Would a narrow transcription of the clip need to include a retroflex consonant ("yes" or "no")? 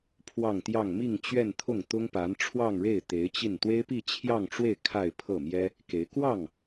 yes